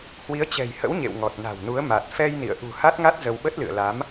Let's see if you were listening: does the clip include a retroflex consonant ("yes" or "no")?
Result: no